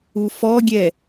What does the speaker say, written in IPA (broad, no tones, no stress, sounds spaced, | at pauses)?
u f ɔ ɡʲ ɛ